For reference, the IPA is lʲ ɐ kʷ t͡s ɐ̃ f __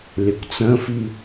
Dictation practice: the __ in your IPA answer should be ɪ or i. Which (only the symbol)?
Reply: i